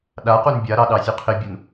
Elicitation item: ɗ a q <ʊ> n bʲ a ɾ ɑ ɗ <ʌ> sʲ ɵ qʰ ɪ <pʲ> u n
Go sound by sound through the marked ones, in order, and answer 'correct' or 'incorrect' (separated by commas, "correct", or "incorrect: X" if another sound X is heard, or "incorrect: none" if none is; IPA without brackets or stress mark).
incorrect: u, incorrect: ɑ, incorrect: bʲ